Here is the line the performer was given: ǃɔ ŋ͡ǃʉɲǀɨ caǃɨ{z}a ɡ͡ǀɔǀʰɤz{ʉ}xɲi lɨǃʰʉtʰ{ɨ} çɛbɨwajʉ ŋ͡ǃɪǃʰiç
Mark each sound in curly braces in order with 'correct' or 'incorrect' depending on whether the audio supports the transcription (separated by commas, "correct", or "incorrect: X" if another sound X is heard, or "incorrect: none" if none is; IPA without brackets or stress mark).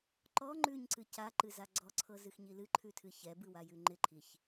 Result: correct, incorrect: ɨ, correct